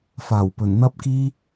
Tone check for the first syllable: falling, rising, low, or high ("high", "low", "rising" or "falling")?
low